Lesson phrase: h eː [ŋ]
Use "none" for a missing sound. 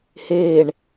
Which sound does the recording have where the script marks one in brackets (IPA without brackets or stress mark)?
ɳ